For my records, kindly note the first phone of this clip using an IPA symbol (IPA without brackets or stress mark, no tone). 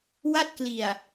w